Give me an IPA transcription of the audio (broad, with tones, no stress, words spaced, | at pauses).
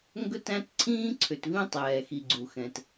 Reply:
ŋɡɵ˦tæ̃˦t ǀʰĩː˦ǀʰʏ˨tvĩ˦ tˤɛː˨xi˨ ɡ͡ǀu˨xɛ̃˨t